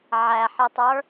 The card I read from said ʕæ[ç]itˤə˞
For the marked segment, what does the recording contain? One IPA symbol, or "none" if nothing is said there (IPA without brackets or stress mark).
ħ